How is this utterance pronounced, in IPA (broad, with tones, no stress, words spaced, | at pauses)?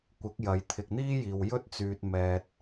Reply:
kʷɪ˨˥k̚jɐ˨˧j t̪ʰɪ˨k̚n̪iː˥jiː˨wjɵ˥t̚ t͡syː˨t̚mɛː˨t̚